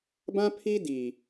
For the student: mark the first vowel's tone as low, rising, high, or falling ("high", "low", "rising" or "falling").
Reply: high